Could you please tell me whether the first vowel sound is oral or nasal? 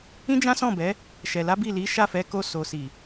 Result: nasal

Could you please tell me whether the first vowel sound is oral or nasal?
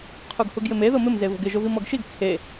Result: oral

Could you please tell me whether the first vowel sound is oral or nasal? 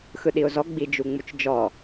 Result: oral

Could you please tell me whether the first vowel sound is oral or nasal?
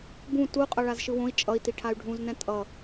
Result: nasal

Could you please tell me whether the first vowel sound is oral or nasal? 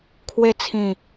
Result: oral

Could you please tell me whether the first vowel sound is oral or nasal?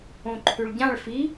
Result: nasal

